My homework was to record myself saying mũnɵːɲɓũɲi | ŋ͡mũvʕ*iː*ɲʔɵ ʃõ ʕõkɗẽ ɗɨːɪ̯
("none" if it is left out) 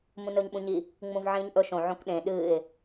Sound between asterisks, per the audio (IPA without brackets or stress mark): ĩː